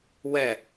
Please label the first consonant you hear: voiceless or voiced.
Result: voiced